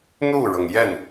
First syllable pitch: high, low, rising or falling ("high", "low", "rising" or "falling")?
falling